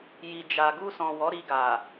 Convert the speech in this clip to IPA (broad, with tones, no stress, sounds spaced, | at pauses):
j i˨ d͡ʒ a˨ ɡ u˧ s ɔ̃˨ w ɔ˨˦ ɾ i˧ ɡ a˨